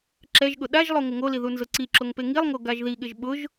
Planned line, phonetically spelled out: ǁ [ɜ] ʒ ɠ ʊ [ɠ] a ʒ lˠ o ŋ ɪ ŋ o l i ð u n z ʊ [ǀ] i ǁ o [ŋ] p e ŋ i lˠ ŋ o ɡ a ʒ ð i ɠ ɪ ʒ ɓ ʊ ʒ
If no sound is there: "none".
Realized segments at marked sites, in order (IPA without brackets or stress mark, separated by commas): ɛ, ɗ, ǀ, ŋ